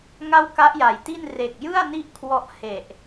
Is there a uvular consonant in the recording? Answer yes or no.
no